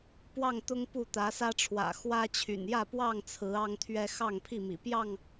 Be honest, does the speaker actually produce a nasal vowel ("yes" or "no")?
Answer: no